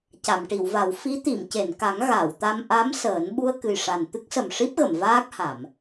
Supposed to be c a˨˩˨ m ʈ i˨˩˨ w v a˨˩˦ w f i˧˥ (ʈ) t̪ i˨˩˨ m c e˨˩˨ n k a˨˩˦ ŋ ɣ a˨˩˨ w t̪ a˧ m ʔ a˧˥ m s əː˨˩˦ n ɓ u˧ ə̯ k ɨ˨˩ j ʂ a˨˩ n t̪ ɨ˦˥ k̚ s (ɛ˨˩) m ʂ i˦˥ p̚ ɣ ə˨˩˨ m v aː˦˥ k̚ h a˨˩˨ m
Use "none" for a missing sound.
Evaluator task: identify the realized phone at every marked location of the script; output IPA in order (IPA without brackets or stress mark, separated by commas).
none, ə˨˩